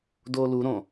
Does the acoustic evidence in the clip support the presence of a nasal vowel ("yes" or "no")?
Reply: yes